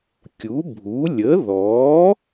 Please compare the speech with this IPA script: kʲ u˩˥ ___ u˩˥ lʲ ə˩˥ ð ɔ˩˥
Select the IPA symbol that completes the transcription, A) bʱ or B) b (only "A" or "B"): A